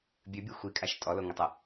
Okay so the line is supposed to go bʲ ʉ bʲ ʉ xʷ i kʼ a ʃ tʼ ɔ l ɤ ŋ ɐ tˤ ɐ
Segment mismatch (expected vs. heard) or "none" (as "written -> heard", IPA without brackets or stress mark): ɤ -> o